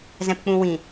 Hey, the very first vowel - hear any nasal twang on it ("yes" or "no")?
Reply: yes